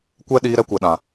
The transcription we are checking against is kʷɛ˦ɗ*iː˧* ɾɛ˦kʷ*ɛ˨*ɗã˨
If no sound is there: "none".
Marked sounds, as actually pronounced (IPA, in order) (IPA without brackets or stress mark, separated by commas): iː˧, ɛ˨